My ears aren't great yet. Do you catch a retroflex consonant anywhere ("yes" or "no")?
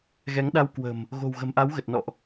no